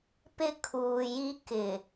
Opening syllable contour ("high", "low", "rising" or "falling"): high